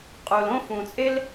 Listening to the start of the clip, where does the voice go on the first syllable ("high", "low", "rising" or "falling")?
low